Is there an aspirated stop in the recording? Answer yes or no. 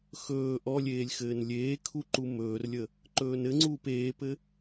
yes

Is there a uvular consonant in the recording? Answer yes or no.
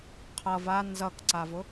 yes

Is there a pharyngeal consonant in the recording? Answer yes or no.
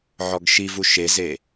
yes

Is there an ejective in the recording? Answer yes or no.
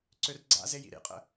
yes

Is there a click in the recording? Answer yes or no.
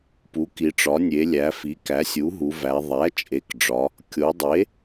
no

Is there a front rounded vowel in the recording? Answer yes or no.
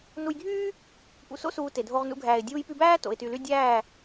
yes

